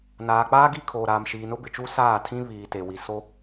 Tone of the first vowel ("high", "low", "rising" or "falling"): low